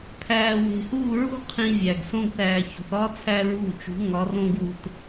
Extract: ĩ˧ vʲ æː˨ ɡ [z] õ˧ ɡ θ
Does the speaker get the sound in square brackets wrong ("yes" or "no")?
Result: yes